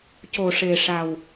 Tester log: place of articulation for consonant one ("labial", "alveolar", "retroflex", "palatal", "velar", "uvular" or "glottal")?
palatal